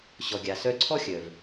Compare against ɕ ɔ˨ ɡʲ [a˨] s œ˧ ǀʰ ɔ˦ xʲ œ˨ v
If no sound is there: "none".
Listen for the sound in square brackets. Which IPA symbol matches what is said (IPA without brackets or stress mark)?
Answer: a˨